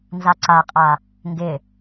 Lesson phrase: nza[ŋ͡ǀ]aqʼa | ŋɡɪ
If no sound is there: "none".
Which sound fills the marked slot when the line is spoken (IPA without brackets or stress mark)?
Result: ǀ